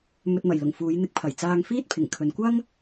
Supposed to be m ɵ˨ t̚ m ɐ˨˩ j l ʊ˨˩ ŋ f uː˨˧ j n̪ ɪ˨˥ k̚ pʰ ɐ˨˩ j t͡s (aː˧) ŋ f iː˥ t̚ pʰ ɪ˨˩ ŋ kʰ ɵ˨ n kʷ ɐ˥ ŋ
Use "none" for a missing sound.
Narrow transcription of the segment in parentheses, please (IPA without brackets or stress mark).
aː˧